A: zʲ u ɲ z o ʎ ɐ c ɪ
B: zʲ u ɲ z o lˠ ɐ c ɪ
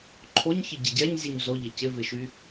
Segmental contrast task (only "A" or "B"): A